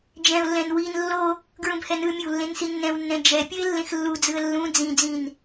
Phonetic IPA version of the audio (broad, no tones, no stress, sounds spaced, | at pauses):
d͡ʒ ɛ̃ ʊ̯ lː ɛ̃ n w i n lː o | ɡ ɹ ũ b h ɛ n ɯ mʲ o w lː ẽ n s i nː ɛ̃ w nː ɛ̃ d͡ʒ ɛ pʲ ʌ ɪ̯ lː ẽ x lː u d͡z ɯ ə̯ lː ũ d͡z ĩ d͡z ĩ n